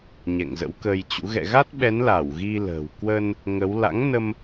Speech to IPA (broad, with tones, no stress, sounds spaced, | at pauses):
ɲ ɛ̰˧˨ ŋ z ə̰˧˥ w k əː˧ j t͡ɕ ṵ˧˥ ɣ ɛ̰˧˨ ɣ a˦˥ t̚ ɓ ɛ˨˦ n l a˧˩ w ɣ i˧ l ə̤ː˨˩ w k w ə˧ n | ŋ ə˨˦ w l a̰˧˥ ŋ n ə˧ m